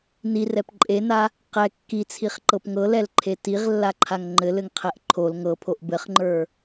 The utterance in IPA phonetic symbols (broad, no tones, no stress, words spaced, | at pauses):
nirɛp ǃʼena | qɛ kːit͡sʰiχǃɤp ŋɤlɛlǃʰe tiʁlːaǃʰaŋ ŋ͡ǃɘlɘŋqʰɛʔ ǃʰol ŋɤpʰoʔ bɘχŋ͡ǃə˞